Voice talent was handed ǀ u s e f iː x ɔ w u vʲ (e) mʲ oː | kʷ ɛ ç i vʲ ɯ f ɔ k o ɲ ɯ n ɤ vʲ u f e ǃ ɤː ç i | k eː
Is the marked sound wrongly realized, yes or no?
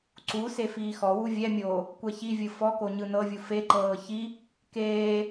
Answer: yes